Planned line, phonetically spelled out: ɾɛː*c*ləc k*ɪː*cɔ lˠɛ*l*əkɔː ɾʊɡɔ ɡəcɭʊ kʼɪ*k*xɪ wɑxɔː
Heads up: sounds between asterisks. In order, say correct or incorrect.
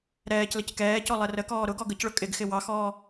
correct, incorrect, incorrect, incorrect

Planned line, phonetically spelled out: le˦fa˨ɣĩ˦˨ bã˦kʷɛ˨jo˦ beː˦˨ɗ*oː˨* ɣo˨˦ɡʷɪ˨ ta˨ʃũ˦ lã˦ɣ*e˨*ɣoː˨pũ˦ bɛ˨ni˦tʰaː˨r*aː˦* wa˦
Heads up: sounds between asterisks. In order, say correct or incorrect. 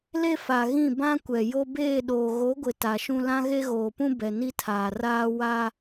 correct, incorrect, correct

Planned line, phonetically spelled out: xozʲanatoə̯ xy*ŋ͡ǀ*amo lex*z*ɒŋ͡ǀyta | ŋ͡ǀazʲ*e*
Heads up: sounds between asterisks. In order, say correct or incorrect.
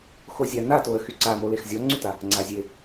incorrect, incorrect, correct

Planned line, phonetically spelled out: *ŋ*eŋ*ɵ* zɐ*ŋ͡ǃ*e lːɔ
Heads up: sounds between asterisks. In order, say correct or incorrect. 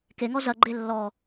incorrect, incorrect, incorrect

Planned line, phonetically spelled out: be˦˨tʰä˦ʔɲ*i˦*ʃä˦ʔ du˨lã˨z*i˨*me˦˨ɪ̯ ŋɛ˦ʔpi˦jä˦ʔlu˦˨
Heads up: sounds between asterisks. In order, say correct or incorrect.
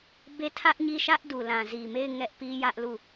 incorrect, correct

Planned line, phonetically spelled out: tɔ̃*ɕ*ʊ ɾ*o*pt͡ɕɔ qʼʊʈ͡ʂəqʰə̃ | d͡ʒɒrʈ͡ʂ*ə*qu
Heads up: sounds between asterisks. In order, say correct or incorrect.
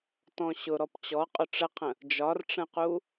correct, incorrect, incorrect

